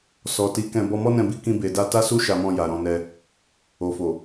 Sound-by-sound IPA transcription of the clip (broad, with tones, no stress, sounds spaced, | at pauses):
s ɔ˨ t i˨˦ k ɛ̃˧ b ɔ˧ m ɔ˦ n ɛ̃˧ b i˧ k ĩ˧ b e˨ d a˧ t a˦ s u˦ ʃ a˧ m ɔ̃˧ j a˨ ɾ ɔ̃˧ n ɛ˧ | o˨ f o˨